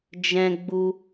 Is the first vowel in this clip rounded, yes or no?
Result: no